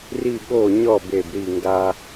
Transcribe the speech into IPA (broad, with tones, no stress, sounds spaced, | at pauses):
r i˦˨ ɠ o˦˨ ɲ ɔ˦˨ b e˦˨ b ɾ i˦˨ ŋ ɡ a˦